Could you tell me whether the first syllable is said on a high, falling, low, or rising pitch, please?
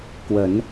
rising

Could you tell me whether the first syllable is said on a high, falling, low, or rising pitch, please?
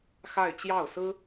falling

